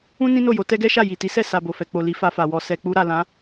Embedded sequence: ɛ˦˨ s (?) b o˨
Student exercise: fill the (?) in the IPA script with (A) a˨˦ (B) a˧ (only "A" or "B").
B